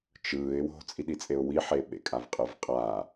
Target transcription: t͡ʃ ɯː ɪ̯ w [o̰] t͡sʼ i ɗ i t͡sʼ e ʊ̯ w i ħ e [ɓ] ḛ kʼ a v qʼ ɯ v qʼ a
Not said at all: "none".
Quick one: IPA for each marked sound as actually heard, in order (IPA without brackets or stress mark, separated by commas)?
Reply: o̤, ɓ